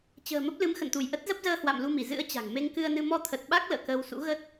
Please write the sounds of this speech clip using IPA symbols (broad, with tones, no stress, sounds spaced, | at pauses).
t͡ɕ ə̤ː˨˩ m ə˦˥ p̚ l ɨ˨˦ m x ə̰˧˨ n t̪ u˧˩ j ʔ ə˦˥ t̚ z ə˦˥ p̚ z əː˧ h w a̰˧˨ m l u˧ m i˧˩ z ɨ̰˧˥ ə̯ t͡ɕ a̤˨˩ ŋ m e˧ ŋ k ɨ˧ ə̯ n ɨ˧ m ɔ˧ t̪ʰ ə˨˩ t̚ ɓ a˦˥ k̚ l ə̰ː˧˨ k əː˧ w s ṵ˧˥ ɣ ə˦˥ t̚